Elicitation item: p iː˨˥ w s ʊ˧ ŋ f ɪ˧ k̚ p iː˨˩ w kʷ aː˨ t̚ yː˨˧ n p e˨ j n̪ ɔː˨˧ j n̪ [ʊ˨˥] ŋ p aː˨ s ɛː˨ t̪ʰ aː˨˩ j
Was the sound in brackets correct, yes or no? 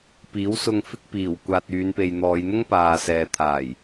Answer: no